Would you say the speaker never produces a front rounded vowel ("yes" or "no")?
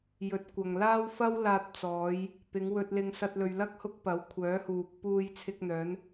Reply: no